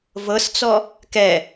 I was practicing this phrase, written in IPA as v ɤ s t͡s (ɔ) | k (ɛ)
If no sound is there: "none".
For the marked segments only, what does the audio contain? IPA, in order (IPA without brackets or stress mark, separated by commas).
ɔ, ɛ